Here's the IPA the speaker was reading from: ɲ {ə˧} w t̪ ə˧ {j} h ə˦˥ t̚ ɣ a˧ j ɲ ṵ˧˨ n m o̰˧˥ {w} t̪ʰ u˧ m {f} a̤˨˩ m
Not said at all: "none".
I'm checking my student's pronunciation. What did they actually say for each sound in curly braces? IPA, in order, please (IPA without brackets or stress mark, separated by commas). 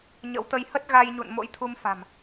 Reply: ə̰˧˥, j, j, f